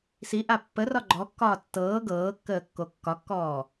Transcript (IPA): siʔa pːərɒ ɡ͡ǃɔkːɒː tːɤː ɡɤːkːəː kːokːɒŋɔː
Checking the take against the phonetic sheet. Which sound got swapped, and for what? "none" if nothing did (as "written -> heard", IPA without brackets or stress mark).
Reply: ŋ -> kː